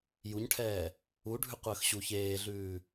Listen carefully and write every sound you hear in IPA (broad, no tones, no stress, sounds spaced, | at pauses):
j u ɲ ʈʰ ɛː | u ɖʱ ʉ qʷ əː x ɕ u ç eː ɮ ʉː